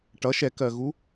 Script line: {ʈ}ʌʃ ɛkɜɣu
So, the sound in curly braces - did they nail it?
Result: yes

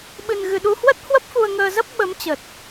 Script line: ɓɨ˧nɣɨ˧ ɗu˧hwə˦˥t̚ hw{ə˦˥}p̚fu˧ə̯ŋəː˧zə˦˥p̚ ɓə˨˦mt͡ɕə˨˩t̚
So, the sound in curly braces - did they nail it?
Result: yes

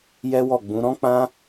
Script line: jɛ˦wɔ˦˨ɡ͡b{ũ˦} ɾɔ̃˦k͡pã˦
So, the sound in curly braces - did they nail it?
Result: no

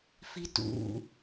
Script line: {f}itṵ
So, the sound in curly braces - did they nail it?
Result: yes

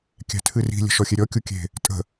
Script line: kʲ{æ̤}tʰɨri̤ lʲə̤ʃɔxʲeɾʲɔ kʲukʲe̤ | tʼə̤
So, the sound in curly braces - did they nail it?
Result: yes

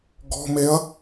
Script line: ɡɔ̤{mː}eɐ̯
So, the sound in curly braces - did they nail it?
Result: no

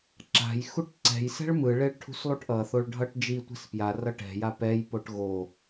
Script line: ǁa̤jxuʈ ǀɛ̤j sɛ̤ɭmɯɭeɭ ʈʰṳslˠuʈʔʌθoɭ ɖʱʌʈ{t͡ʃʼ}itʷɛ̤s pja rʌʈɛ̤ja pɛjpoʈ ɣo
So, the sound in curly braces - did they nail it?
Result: no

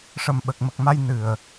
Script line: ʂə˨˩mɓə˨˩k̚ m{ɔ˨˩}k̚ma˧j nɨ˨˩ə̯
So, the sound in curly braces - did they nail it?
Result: no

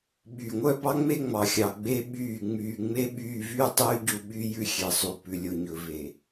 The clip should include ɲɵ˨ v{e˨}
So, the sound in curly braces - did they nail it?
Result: yes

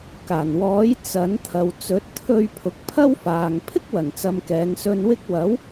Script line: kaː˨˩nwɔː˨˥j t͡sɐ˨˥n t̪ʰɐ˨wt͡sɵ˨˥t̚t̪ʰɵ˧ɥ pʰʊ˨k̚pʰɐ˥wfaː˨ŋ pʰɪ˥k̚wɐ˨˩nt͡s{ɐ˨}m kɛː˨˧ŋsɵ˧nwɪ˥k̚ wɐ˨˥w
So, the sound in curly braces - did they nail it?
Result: yes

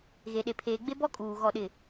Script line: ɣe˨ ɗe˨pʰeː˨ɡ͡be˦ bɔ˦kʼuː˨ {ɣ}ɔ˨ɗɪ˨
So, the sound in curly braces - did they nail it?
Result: yes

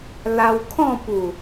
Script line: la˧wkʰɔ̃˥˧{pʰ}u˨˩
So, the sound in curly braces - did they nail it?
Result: no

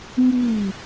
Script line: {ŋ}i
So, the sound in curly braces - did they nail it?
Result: yes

